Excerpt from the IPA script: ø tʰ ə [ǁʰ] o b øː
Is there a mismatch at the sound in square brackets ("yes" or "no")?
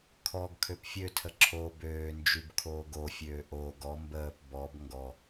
no